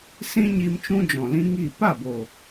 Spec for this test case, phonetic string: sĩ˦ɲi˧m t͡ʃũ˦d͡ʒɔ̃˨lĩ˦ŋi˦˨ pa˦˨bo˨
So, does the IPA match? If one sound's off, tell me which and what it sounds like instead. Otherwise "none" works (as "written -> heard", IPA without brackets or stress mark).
none